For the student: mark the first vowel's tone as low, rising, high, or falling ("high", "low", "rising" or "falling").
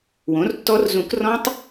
rising